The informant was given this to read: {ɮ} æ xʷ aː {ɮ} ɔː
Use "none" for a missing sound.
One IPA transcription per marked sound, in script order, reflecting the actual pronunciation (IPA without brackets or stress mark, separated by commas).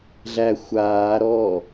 ɮ, ɾ